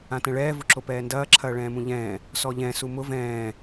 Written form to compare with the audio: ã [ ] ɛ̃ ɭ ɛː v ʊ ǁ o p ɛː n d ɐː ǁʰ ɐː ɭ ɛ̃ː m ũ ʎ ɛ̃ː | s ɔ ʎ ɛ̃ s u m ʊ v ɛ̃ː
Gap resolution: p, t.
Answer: t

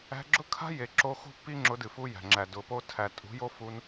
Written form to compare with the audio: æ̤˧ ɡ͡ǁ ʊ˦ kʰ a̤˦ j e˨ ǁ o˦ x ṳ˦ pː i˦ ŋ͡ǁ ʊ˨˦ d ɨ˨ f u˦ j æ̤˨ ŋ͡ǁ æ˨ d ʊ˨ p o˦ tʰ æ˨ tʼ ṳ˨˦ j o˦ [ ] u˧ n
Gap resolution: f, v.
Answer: f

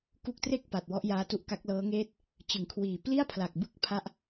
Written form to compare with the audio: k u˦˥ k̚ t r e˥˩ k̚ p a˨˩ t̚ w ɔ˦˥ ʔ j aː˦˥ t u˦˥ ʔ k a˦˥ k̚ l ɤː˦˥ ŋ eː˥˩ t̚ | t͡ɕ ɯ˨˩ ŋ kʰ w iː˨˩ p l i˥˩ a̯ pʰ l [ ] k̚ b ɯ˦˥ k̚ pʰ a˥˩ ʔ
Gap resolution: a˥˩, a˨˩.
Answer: a˨˩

